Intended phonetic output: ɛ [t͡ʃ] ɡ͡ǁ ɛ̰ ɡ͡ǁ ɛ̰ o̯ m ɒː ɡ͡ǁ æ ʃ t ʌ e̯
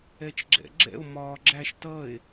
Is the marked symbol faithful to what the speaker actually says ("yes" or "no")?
yes